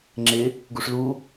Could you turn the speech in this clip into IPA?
ŋ͡ǁ ɪ | ɡ u ʂ l u

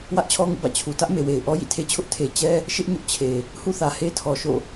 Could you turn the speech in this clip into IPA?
w ä˦ ʔ t͡ɕʰ ɔ˦ ŋ ṵ˦˨ b ä̰˦˨ t͡ɕʰ u˨ t ä˦ ʔ m e˨ w e˨ ɪ̯ ʔ ɔ˦ j ḭ˦˨ tʰ e˦ t͡ɕʰ ʊ˦ ʔ tʰ e˨ t͡ɕ ɛ˦ | ʃ ɪ˦ ʔ ɲ ʊ˦ ʔ t͡ɕʰ e˨ | h ṵ˦˨ θ ä˨ h e˦ tʰ ɔ˨ ʃ o̰˦˨

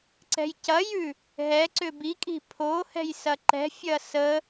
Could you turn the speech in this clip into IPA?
ǀ ɛ̤ j c ɐ j ʉ | ɦ ɛ ǀ ʏ b i kʼ i̤ pʰ o h ɛ̤ j s ɐ ǃ ɛ̤ fʲ ɐ s ə

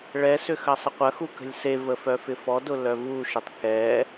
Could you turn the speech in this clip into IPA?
ɭ ɛ s ʏ x ɐ sˤ ə qʷ ɐ x u k ə̤ lʲ s e v ə f œ f ɪ f ɔ d ʊ l œ v u ʃ ɪ tˤ k ɛ

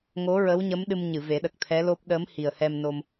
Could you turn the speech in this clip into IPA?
ŋ o˧˥ ɹ ə˧˥ w ɲ ə˧˥ m ɗ ɨ˧ m ɲ ɨ˨˩˨ v e˨˩˦ ɗ ə˨˩ k̚ t̪ʰ ɛ˧˥ l o˦˥ p̚ ɗ ə˧˥ m h i˨˩ ə̯ h ɛ˧ m n o˧ m

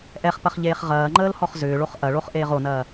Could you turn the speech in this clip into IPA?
ʔ ɛ χ p ɐ χ ʎ eː χ ʁ ɐː ŋ͡ǃ əː l h ɔ χ z ʏː ɭ o χ ʔ ɐ ɭ o χ ʔ eː ʁ o n ɐː

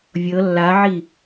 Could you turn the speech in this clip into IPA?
vʲ ɤ lː a ʕ i

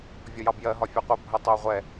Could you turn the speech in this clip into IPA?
vʲ ɔ j ɑ b j ɜ ɦ ɒ fʲ ɛ qʷ ə bʱ ə tˤ ʊː ʁʷ ɛ

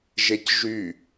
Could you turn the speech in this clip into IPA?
ʒ e c ʒ y

